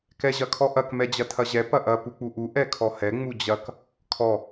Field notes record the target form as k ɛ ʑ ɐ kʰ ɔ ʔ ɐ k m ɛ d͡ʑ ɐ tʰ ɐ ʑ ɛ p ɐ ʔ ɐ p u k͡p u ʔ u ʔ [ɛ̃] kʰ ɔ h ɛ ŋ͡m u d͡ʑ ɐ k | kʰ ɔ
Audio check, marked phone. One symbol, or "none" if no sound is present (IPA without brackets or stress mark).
ɛ